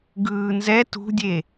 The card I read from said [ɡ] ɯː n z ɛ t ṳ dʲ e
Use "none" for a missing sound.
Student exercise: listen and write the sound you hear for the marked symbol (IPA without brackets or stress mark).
ɡ